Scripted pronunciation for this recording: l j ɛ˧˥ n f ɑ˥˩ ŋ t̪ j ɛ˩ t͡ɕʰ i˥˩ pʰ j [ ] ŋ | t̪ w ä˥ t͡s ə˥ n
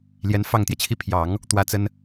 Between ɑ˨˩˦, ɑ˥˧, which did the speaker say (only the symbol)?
ɑ˨˩˦